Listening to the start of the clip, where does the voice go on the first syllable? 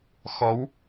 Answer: rising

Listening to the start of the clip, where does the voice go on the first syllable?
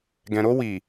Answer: low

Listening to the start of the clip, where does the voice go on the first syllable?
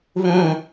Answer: falling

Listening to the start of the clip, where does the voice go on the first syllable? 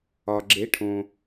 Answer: low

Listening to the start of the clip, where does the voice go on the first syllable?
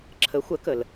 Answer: rising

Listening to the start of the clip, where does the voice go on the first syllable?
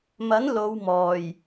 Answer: rising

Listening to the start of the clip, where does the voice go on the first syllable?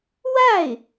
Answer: falling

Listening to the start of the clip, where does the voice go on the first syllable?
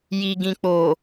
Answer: low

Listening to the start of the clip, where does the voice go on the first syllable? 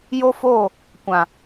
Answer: high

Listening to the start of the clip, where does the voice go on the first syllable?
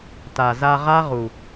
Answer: low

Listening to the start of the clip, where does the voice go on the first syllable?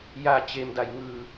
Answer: falling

